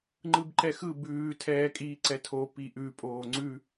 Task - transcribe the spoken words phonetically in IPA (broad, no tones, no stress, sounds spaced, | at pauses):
ŋ͡ǃ ɯ b ǃ ɛ x ɯ b ʉː tʰ ɛː kʼ iː ǀ ɛ tʰ o p i ʔ ʉ pʼ oː ŋ͡ǀ ʉ